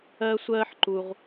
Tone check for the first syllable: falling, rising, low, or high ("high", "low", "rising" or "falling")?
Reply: high